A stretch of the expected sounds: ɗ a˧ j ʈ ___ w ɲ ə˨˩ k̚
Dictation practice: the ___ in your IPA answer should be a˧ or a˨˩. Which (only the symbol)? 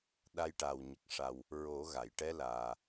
a˨˩